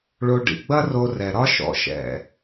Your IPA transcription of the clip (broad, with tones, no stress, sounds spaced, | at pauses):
ɭ o˧ ɖ ḭ˨ ɡ͡b ɐ˦ r o˧ r ɛ˨ ɾ ɒ˦ ʃ ɔ̰˧ ʃ ɛ̰˨